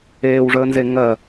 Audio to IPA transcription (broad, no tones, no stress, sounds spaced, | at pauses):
eː w ʐ əː n z e ŋ ɜ